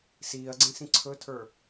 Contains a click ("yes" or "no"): yes